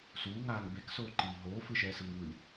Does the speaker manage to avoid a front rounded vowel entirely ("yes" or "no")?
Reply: yes